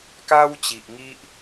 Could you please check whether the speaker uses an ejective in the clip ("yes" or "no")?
no